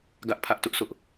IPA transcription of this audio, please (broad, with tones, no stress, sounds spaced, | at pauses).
ɡ ä˦ ʔ pʰ ä˦ ʔ t ʊ˦ ʔ s ʊ˦ ʔ